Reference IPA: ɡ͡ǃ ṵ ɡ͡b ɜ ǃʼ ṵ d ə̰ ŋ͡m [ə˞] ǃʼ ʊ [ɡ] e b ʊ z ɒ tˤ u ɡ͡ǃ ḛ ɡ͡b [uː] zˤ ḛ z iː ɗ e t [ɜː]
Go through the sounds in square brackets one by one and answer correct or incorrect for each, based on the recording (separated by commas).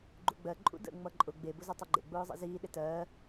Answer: incorrect, incorrect, incorrect, correct